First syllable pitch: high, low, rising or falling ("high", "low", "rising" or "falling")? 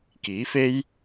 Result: rising